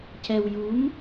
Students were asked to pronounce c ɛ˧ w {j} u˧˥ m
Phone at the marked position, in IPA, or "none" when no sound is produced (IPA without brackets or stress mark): j